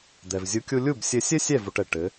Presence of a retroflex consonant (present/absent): present